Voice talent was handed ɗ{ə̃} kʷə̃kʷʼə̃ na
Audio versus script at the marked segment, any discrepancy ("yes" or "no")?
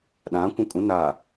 yes